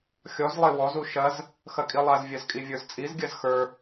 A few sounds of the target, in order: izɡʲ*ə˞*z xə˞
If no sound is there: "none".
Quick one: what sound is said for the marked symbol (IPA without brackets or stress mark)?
ɜ